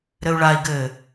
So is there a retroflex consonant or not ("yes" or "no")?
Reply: yes